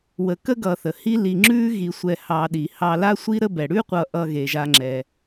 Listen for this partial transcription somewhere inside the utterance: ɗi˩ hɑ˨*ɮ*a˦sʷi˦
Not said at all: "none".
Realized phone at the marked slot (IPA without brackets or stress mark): l